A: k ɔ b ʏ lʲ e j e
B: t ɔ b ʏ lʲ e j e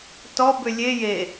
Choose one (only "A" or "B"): B